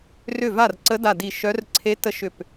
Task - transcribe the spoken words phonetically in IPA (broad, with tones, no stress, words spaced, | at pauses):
rʏ˥˩va˥˩r ǀə˧˥da˧˩ di˧˩ ʃœ˧˥r ǀʰe˧˥tə˧˥ ʃʏ˧˩p